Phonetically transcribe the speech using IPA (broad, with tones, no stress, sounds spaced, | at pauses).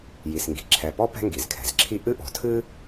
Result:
j i˩ s ŋ ɡ i̤˩ ǁʰ ɛ˩ p ɔ˥ p ɛ̤˥ ŋ ɡ i˩ z kʰ ɛ̤˩ z ǁʰ i˥ ʔ ɨ˥ ʔ ɔ̤˩ tʰ ɨ˥